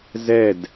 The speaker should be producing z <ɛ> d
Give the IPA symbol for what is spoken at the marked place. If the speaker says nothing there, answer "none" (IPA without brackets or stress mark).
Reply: ɛ